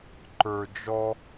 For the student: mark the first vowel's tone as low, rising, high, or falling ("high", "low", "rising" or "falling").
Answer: low